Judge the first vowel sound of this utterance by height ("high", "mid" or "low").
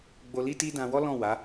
mid